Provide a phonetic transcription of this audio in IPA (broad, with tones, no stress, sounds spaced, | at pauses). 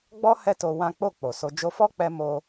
ɡ͡b ɔ˦ h ɛ˦ t o˧ w ã˦ k͡p o˦˨ k͡p o˨ s o˧ d͡ʒ o˧ f ɔ˦ k͡p ɛ˧ m o˧